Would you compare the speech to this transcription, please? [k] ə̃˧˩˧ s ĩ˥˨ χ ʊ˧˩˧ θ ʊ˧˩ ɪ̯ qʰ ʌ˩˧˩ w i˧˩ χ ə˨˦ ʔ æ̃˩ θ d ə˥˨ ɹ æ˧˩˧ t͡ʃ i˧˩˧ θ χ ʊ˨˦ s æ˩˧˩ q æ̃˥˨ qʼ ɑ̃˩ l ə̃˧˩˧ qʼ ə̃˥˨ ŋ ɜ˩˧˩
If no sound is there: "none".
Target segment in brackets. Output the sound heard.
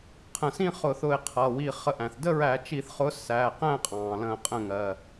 qʰ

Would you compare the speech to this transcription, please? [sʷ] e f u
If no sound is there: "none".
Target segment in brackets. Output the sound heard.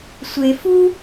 sʷ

